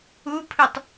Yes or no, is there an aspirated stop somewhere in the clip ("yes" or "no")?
yes